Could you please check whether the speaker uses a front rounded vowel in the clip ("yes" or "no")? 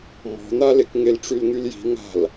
yes